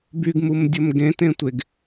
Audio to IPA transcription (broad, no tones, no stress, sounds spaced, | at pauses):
b y ɡ m u m dʲ ə m ɡ ẽ t ẽ tʷ e ɡ